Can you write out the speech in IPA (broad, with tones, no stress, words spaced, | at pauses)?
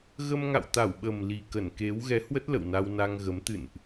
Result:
ɣə˧mŋa̰˧˨wt̪a˧˩wɓə˨˩m li˨˩kə˧˩nke˨˦w ɣɛ˨˦hwə˦˥t̚ lə̰˧˨wna˧wna˧ŋɣə˨˦m t̪ɨ̰˧˨nʔ